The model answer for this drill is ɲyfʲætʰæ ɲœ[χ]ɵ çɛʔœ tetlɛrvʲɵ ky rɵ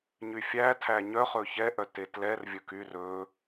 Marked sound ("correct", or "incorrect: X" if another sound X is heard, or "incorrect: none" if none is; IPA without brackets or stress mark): correct